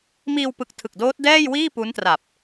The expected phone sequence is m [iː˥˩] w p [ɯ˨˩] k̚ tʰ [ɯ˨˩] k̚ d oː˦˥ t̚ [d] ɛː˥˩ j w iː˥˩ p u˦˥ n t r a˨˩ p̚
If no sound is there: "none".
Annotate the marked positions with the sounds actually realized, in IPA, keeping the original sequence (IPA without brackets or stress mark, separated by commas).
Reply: iː˧, ɯ˨˩, ɯ˨˩, d